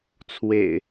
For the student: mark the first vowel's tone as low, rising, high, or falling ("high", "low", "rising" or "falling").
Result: low